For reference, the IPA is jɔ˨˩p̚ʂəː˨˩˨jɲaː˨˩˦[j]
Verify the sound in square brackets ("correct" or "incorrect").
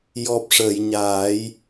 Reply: correct